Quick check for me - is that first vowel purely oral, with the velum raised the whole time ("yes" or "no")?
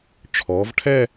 yes